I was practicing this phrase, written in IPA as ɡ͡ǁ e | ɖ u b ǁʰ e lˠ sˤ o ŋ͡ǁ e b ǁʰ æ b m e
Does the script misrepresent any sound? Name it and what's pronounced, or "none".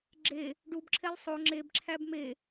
none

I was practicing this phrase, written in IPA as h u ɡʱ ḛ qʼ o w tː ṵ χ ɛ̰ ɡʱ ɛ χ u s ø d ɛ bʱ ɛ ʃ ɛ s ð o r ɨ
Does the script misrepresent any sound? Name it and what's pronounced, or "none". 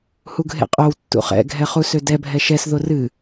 none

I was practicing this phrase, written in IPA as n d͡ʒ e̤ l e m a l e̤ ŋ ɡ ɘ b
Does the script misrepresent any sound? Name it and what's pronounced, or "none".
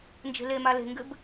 none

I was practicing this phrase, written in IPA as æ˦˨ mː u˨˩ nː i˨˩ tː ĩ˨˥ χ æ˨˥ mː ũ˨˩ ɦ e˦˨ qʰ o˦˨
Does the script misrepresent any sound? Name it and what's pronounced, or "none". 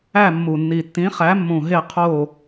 none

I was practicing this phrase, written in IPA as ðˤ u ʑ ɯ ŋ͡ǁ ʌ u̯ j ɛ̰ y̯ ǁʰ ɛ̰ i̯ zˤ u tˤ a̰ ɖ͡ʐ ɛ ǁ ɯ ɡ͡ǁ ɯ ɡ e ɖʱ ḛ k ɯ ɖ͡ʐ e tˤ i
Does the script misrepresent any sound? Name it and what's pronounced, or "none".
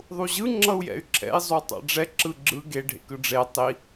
none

